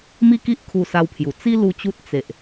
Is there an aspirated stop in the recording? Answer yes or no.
yes